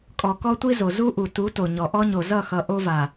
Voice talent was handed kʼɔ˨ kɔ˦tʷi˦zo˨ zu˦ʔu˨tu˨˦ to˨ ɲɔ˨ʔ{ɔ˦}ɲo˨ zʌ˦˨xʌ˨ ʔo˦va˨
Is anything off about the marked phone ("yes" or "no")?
no